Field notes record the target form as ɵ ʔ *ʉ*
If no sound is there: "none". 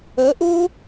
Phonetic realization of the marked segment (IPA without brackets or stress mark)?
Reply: u